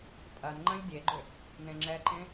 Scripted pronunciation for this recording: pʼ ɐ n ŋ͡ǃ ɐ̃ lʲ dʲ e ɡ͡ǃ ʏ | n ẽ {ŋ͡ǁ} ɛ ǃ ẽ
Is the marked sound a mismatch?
no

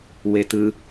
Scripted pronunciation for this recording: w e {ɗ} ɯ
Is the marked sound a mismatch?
yes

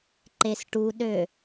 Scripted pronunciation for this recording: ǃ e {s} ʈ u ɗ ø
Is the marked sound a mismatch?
no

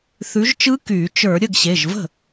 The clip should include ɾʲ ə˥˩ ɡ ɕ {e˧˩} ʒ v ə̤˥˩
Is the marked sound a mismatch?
yes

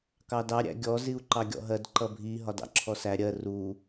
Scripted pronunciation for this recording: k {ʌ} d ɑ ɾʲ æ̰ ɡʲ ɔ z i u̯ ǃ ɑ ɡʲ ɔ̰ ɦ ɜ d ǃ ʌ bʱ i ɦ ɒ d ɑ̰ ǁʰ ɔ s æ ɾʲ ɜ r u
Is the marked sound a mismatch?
yes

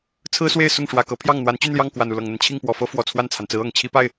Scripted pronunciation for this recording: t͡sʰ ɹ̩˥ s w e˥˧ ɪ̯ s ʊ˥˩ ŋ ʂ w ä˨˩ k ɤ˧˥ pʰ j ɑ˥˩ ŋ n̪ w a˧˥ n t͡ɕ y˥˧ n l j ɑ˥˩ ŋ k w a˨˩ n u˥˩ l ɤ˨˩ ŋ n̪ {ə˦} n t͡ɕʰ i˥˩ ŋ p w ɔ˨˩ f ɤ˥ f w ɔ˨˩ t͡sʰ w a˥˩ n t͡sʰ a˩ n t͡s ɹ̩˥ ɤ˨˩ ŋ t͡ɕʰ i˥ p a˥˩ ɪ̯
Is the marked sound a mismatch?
no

